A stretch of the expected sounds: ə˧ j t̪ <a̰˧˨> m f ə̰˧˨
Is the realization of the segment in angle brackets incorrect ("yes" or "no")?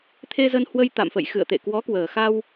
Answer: no